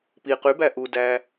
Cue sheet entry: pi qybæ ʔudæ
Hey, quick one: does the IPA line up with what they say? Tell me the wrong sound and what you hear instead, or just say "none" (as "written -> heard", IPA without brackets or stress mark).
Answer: none